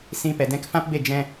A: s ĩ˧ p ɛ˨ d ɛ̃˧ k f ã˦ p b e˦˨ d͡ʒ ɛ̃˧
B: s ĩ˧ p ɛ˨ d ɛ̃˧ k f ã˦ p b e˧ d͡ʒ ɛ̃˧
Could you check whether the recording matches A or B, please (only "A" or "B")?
A